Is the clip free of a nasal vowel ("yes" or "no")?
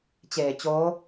yes